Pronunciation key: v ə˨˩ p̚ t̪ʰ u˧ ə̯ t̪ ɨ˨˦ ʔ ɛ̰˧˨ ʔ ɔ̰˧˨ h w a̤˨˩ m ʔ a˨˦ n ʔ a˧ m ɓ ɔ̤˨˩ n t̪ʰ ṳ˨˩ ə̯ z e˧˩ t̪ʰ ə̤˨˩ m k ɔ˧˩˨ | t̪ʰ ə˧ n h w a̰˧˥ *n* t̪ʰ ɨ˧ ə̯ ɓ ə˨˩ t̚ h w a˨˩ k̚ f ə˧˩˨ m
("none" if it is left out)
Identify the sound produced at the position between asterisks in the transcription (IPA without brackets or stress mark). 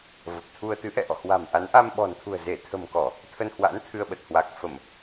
n